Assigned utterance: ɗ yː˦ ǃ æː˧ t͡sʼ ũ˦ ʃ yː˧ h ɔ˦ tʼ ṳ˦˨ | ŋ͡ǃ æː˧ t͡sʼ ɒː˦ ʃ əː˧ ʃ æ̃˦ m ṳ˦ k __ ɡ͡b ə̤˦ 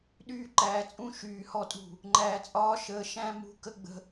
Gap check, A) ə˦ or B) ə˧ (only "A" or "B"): A